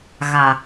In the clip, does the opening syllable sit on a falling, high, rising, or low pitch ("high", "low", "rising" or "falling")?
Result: low